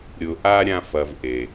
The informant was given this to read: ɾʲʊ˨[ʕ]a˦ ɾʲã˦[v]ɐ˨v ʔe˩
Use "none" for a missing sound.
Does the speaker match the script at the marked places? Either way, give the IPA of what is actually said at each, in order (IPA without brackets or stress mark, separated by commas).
ʔ, f